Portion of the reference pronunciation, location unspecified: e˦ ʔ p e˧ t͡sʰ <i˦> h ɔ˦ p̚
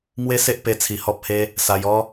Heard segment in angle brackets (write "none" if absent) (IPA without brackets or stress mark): i˧